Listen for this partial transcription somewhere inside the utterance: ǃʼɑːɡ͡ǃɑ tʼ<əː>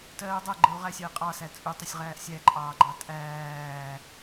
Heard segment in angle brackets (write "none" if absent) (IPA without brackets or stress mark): æː